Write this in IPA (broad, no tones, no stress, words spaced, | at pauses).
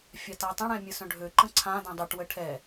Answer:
fʲatatˤə̃ɽɛ̃ mʲəsœ̃ɖʱøǃə̃ ǀʰãdœ̃ dˤʏʈwə ʈʰɛ